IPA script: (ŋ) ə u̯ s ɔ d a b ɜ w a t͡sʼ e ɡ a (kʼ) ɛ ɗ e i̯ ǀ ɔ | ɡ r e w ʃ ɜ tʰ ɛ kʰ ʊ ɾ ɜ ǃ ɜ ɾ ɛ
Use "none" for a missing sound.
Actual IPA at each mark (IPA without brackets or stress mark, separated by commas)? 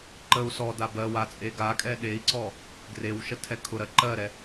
ǃ, kʼ